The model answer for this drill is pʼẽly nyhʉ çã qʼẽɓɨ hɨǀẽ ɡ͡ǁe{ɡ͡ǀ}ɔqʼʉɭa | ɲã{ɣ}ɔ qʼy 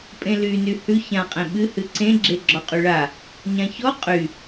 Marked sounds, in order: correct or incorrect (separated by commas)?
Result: incorrect, incorrect